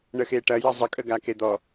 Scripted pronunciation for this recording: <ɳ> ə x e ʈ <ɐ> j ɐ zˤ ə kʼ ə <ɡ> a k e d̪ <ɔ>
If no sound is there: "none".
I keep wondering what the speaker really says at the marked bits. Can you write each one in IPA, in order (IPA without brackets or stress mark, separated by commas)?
ɳ, ɐ, ɡ, ɔ